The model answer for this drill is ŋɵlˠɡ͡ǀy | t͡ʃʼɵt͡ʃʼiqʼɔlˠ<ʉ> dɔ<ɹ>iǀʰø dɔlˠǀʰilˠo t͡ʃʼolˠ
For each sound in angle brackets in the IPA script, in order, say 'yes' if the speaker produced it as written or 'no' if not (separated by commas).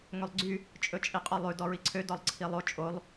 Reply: yes, yes